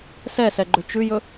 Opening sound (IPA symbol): s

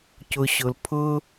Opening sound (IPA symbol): c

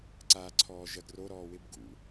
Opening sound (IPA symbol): ǀ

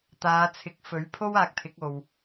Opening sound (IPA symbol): t̪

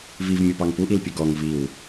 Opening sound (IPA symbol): v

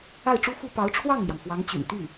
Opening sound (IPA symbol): a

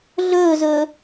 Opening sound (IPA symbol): ɮ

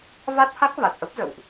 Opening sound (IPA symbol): v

